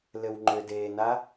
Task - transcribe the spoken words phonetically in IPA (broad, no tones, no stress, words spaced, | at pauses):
lɘwŋ͡ǃʏdeːna